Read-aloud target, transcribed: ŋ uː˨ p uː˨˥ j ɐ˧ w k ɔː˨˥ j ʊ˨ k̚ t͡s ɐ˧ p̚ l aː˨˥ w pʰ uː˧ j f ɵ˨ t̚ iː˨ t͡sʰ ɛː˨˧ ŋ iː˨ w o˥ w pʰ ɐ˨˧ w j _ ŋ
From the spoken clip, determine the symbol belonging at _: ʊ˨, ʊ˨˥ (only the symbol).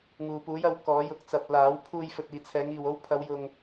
ʊ˨